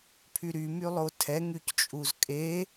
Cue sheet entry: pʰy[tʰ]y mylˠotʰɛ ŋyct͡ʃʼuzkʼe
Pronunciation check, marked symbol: incorrect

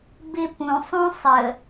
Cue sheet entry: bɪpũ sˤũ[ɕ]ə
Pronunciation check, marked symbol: incorrect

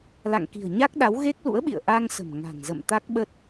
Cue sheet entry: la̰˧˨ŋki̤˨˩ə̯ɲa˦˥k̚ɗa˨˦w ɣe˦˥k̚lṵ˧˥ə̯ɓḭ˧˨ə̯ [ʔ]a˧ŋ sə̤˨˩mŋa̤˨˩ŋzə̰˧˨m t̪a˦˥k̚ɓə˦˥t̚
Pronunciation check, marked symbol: correct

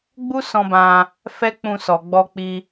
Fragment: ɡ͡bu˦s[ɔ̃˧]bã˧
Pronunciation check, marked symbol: correct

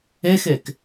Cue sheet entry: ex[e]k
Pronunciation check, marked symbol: correct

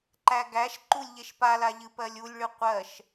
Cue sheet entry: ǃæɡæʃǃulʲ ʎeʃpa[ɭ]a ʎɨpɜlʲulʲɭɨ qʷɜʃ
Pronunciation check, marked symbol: incorrect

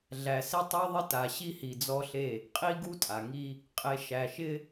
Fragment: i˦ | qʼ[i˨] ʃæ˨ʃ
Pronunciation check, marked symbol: incorrect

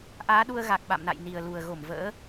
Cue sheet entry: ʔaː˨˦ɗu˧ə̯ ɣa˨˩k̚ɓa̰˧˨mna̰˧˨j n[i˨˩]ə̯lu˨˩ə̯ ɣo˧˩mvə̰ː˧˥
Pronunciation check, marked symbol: correct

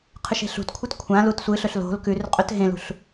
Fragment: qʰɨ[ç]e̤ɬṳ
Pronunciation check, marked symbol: incorrect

